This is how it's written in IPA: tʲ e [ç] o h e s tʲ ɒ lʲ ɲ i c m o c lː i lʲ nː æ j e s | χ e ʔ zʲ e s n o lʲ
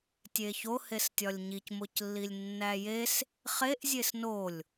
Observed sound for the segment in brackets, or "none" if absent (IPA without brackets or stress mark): ç